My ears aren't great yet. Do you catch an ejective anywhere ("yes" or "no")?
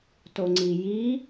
no